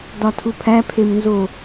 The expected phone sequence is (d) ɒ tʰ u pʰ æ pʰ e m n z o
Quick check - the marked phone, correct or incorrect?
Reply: correct